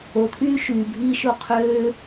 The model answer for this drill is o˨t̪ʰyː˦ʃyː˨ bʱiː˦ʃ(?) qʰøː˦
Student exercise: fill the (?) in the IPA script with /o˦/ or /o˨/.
o˦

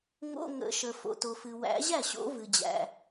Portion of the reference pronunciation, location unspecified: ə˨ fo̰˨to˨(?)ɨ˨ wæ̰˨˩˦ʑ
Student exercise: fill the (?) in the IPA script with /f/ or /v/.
f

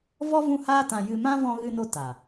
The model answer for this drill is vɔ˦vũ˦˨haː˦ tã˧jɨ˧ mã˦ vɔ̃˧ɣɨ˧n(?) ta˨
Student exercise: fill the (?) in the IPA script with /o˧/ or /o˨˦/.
o˧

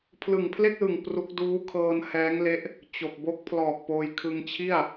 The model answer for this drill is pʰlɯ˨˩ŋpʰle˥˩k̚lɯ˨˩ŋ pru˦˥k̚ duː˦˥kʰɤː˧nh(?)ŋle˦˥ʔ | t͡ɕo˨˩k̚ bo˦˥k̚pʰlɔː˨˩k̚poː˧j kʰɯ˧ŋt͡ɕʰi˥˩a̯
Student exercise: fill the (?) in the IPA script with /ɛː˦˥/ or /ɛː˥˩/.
ɛː˦˥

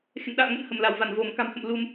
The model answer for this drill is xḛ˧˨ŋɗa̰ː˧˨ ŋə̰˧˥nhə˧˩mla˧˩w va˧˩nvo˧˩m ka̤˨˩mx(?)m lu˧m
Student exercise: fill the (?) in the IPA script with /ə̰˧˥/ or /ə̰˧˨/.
ə̰˧˨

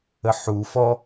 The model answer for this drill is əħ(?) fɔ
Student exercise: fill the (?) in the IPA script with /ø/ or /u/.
u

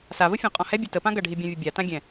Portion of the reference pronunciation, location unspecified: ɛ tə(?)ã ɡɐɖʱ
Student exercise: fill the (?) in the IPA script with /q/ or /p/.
p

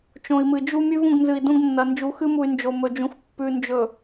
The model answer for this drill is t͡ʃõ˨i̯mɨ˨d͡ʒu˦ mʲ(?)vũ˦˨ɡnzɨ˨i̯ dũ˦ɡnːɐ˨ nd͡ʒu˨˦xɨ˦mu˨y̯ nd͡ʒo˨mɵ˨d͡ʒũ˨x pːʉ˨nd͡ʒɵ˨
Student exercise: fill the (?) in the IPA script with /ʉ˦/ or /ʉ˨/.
ʉ˦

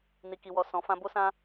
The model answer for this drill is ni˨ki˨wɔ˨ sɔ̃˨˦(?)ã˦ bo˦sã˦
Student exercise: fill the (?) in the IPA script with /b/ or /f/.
f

